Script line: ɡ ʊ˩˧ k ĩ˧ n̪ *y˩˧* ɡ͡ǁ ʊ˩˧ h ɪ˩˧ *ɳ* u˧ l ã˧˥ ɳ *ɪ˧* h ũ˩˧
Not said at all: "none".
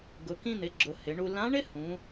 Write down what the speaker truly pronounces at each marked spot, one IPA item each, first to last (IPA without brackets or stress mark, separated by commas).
ɪ˩˧, ɳ, ɪ˥